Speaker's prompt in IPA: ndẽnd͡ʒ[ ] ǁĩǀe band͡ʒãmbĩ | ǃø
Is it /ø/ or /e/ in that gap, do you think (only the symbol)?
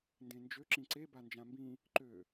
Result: ø